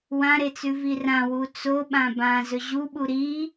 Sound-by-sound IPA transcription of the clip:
w ã ɾ e t͡s ʉ v i r ã w u t͡s o ɓ ã b ã z ɵ ʑ u ɓ u ɾ i

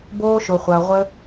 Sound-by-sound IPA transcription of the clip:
b oː˧ ʃ ʊ˨ χʷ ɐː˨ ʁʷ ə˧

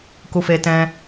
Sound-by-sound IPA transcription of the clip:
k u˧ f e˧ t ɛ̃˧

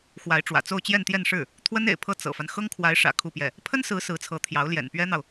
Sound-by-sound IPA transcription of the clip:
x w a˧˥ ɪ̯ ʈ͡ʂ w ä̰˨˩ t͡s o˥˧ ʊ̯ t͡ɕ j ɛ˥˧ n t̪ j ɛ˥˧ n ʂ ɻ̩˥˩ | t̪ʰ w ə˥ n ḛ˨˩ ɪ̯ pʰ ɤ˥˩ t͡s ɤ̰˨˩ f a˦ n x ɤ˥ ŋ kʰ w a˧˥ ɪ̯ ʂ ä̰˨˩ kʰ u˥˧ p j ɛ˥˩ | pʰ ə˥ n s ɹ̩˧˥ s ɹ̩˧˥ t͡sʰ ɤ˧˥ t̪ʰ j ɑ˧˥ ʊ̯ l j ɛ̰˨˩ n p ɥ ɛ˥ n̪ ɑ˨ ʊ̯

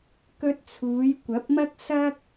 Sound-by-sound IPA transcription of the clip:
k ɵ˧ t̚ t͡sʰ uː˨˧ j kʷ ɐ˨˥ p̚ m ɐ˥ k̚ s ɐ˥ k̚

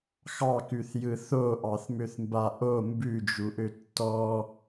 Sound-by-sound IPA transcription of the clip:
x ɑ k ʉ θ j ɯ θ o ʔ ɑ θ m ø θ m b a ʔ o m b ʉ d͡ʒ u ʔ ø tː ɔ

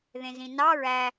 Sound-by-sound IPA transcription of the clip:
ð ẽ z ĩ n ɑ ɹ æ

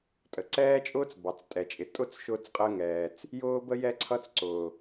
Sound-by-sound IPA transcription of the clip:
tʼ ə˩ ǀ ɛː˥ t͡ʃʼ ʊː˥ t͡s b ɑ˩ t͡s tʼ ɛ˩ t͡ʃʼ ɪ˩ tʼ ʊ˥ t͡s ʃ ʊː˥ t͡s qʼ əː˥ ŋ ɛː˩ t͡s | j ʊː˥ b ə˥ j ɛ˥ ǀʰ ʌ˥ t͡s ǀ ʊː˩

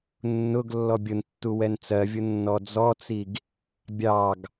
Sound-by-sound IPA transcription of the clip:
nː ʊ ɡ lː ɔ bʲ ʊ n tː u w ɛ n t͡s ɜ vʲ ʊ nː ɔ d͡z ɔ t͡s i ɡ | bʲ ɑ ɡ

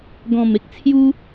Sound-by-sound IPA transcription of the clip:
ɡ ɔ̃˨˩ m e˦ k̚ t͡sʰ j u˦

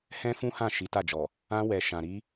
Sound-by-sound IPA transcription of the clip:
h ɛ̃˦ f ũ˦ h ã˦˨ ʃ i˨˦ t a˦˨ d͡ʒ ɔ˨ | ã˧ w ɛ˨ ʃ ã˨ ɾ i˧

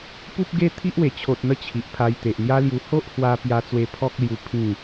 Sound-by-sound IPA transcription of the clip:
p u˦ p̚ ɡ e˦ t̪ʰ i˦ ʔ w e˨˩ t͡ɕʰ o˨ t̚ n̪ ə˧ t͡ɕʰ i˨ ʔ pʰ a˧ j t̪ e˨ ʔ n̪ j a˦ l j u˧ h o˦ ʔ h w a˧ p j a˧ t͡s w e˧ pʰ ɔ˦ k̚ l j u˧ pʰ ĩ˥˧

